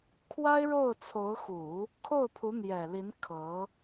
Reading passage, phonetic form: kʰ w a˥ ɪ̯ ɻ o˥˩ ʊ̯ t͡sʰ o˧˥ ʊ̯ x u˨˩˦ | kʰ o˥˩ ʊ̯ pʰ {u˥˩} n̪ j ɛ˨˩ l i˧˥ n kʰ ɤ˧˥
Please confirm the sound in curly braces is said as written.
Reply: no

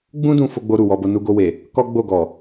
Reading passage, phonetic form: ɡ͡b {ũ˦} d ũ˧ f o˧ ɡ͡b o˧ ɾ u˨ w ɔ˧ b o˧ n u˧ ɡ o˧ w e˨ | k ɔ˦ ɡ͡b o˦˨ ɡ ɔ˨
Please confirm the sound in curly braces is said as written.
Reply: yes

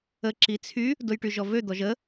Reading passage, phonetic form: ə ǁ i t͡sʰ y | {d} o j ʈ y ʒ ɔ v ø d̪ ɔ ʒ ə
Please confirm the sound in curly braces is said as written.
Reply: yes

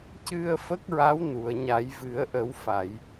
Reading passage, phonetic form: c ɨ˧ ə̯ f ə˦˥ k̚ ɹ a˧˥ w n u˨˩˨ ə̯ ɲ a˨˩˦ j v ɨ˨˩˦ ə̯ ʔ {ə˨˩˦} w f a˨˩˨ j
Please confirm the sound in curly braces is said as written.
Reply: yes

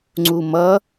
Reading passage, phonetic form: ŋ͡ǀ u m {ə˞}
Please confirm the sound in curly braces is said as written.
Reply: no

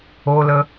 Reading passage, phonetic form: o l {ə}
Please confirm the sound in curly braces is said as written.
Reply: yes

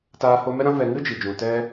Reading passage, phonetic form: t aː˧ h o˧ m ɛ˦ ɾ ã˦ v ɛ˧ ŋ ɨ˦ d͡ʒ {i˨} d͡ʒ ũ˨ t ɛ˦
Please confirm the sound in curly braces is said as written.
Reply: yes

